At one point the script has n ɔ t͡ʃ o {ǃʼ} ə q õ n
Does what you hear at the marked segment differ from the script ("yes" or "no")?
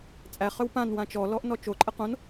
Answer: no